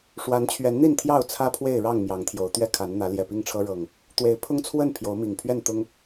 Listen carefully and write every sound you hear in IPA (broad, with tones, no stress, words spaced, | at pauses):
ʂwa˨˦nt͡ɕʰɥɛ˨˦nn̪i˥˨nt̪ʰjɑ˥˨ʊ̯ t͡sʰä˦pʰwe˥˨ɪ̯ɻɑ˥˨ŋ mjɑ˨˦ŋt̪ʰjo˨˦ʊ̯ t̪ɥɛ˦kʰa˨˦n n̪ä˨˦ ljɛ˨˩pi˥˨ŋʈ͡ʂʰɤ˦ ɻɤ˨˩ŋ | t̪we˨˦ɪ̯pʰʊ˦ŋt͡sʰwə˥˨n pʰjo˨˦ʊ̯mi˨˩ŋ pʰɥɛ˥˨nt̪ʊ˦ŋ